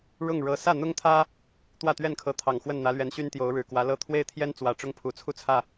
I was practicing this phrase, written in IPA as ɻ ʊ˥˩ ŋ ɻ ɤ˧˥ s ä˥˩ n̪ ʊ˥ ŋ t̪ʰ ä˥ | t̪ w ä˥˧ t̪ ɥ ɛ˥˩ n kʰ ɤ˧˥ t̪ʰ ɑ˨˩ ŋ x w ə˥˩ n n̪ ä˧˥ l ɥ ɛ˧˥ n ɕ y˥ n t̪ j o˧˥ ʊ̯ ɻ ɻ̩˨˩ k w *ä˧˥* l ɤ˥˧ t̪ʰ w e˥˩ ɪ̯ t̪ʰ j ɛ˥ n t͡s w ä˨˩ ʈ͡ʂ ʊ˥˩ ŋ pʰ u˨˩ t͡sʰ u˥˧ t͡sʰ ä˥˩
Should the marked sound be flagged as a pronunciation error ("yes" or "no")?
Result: no